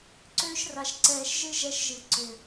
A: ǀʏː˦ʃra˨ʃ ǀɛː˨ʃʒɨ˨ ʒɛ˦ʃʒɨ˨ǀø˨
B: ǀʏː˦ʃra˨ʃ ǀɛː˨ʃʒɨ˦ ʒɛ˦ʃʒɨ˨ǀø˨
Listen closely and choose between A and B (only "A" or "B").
B